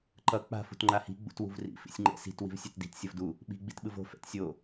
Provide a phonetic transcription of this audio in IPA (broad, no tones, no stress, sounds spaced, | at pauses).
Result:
ǃ ʌ k͡p a̤ f ṳ t ŋ͡ǃ a h i̤ ɡ͡b ṵ t w ṳ v r ḭ f ḭ sʲ ŋ͡ǃ ɛ̰ s i̤ t w i̤ v sʲ ɛ t d i̤ t sʲ ʌ v d u | ɓ i̤ ɡ͡b i t ɓ ɯ v o̤ f ɛ̰ t sʲ o